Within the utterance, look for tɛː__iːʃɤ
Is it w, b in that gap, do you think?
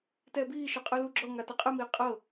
b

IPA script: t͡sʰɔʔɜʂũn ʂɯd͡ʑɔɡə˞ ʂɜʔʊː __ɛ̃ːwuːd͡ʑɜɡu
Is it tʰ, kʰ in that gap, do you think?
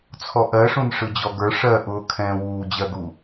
kʰ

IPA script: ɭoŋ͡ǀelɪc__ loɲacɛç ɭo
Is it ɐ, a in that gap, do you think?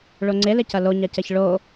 ɐ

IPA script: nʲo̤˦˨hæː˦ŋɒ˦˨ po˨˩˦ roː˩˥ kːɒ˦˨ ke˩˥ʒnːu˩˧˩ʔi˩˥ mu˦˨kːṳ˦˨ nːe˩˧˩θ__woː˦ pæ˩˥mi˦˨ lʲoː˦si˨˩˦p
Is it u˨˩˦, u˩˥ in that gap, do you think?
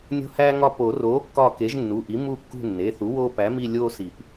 u˩˥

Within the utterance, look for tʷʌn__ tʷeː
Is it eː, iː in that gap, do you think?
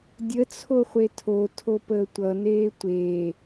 eː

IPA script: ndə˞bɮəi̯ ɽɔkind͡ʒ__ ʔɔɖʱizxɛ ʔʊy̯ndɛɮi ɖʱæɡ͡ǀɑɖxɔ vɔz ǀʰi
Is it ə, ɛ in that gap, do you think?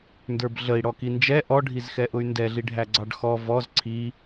ɛ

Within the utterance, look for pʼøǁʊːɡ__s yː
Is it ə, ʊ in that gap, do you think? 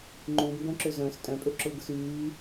ʊ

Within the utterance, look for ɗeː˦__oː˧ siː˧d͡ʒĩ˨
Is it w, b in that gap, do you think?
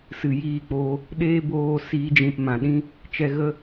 b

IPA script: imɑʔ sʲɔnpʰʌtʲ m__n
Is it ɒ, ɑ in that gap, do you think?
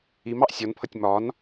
ɒ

